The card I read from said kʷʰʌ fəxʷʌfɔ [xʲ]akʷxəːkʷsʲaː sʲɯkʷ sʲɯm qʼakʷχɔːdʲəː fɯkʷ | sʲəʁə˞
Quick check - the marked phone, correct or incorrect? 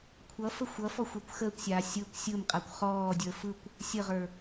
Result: incorrect